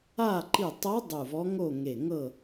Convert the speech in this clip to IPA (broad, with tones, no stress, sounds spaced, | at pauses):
a˥˨ ǃ i˧˩ tˤ ɤ˧˥ dˤ u˧˩ v ɔ˧˥ ŋ o˥˨ ŋ e˧˩ ŋ ɤ˥˨